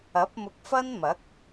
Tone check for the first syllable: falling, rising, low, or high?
rising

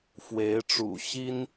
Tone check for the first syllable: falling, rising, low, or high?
rising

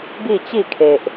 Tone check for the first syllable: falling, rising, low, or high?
falling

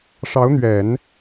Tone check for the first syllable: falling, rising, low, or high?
rising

